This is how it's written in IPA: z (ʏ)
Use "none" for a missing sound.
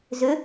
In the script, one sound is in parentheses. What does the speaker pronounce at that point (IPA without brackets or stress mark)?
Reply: ʏ